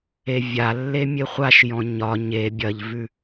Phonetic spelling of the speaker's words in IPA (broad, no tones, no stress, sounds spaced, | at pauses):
e vʲ a lː e mʲ e χʷ a ʃ j ɔ̃ ɲ ɒ ɲ e bʲ ɐ ʎ v ʉ